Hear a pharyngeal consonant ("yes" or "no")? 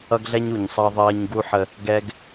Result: yes